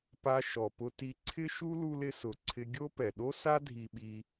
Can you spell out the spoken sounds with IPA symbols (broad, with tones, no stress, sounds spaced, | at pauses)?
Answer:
p a˧ ʃ ɔ˩ p ʊ˧ t i˧ ǀʰ ɪ˥ ʃ u˥ l u˧ l ɪ˧ s ʊ˩ ǀʰ ɪ˧ ɡʲ o˥ p ɛ˩ ɗ o˥ s a˥ dʱ i˧ ɓ i˧